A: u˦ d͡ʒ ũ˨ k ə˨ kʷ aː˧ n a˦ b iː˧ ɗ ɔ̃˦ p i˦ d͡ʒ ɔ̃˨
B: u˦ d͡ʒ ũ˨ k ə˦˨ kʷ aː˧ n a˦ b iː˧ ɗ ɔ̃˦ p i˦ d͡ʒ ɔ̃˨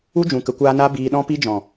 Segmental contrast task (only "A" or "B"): A